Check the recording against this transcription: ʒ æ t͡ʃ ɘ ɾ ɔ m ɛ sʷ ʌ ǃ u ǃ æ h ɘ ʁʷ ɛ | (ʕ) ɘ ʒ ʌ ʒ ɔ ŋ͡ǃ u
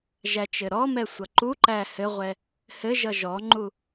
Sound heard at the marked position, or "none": h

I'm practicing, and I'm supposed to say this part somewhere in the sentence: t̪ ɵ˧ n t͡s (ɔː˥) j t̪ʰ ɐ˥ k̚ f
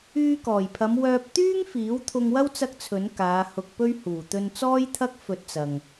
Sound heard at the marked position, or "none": ɔː˥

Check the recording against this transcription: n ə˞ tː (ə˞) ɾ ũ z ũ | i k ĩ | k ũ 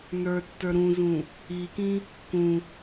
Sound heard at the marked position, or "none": ə˞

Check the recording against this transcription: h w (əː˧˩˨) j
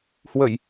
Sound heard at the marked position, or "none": ə˧˩˨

